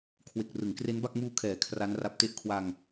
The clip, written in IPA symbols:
kʰwe˨˩k̚rɯ˩˦ŋkre˦˥nba˥˩k̚ muː˦˥kʰɛː˨˩ kʰra˦˥nra˦˥p̚te˥˩ʔ kʰwa˧ŋ

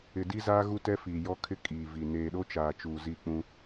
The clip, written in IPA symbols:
ɪ˨di˦zaː˦ ɣu˦tɛ˦fiː˨ jɔ˦kʰɪ˦ kʼiː˨vi˨ neː˨ɗo˦t͡ʃaː˨t͡ʃuː˨ zi˦˨k͡pũ˦

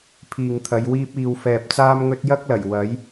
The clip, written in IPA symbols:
pʰiː˨ŋt̪ʰɐ˨˧jwiː˥p̚ iː˨w fɛː˨p̚t͡saː˥mŋɵ˥t̚ jɐ˥k̚lɐ˨˩j wɐ˨˥j

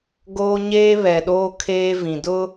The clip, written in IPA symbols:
ɡoː˦ɲeː˦βɛ˨ɗoː˦ kʰeː˦vĩ˨dʊ˦

